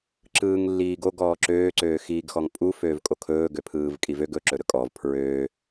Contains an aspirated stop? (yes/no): yes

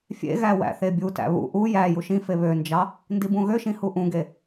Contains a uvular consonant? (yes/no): no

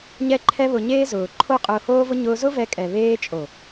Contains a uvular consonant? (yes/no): yes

